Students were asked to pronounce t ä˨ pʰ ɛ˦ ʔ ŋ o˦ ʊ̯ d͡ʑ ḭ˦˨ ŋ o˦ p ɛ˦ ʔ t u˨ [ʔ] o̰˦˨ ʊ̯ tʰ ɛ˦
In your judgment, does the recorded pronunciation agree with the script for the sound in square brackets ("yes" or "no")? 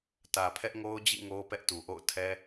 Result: yes